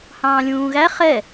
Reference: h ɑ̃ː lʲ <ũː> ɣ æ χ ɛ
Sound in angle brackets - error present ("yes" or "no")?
no